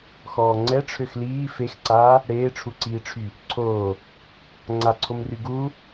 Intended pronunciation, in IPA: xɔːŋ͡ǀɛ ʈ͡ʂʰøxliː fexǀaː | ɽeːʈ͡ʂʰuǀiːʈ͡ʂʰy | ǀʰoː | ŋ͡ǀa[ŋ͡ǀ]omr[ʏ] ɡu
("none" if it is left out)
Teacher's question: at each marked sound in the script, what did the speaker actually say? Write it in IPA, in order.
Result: ǀʰ, y

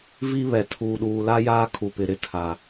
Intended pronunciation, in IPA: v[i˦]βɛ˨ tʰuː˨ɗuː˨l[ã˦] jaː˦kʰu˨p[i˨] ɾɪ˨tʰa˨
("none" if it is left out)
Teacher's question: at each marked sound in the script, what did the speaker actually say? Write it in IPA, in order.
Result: i˦, a˦, ɪ˨

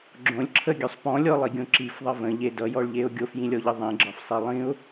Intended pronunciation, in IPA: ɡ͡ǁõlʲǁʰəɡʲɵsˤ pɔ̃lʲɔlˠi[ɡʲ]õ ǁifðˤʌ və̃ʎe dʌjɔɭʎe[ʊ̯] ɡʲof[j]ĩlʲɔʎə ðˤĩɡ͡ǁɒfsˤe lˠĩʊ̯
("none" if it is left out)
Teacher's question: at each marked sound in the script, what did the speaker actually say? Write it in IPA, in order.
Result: ɡʲ, ʊ̯, j

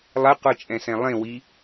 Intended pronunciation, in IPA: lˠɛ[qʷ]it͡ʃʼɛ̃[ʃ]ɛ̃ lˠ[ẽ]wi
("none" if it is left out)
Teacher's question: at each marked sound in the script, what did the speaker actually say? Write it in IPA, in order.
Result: qʷ, s, ẽ

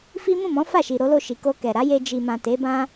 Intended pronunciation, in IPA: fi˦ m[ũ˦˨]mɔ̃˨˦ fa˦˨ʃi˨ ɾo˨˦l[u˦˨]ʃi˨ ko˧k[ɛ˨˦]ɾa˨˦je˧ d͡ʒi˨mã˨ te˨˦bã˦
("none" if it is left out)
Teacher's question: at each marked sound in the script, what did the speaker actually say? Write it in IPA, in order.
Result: ũ˦˨, o˦˨, ɛ˨

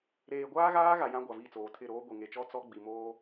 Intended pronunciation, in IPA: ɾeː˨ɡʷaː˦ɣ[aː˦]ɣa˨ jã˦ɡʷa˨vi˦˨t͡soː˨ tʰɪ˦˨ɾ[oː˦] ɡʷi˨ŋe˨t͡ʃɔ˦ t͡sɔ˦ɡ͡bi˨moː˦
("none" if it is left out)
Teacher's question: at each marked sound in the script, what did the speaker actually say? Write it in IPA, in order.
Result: aː˦, oː˦

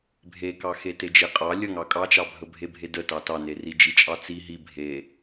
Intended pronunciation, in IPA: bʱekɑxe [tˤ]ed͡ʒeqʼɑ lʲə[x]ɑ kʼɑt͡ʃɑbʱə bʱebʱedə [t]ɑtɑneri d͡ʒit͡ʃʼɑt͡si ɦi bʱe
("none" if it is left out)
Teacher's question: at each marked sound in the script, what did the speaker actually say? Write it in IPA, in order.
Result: t, ŋ, t

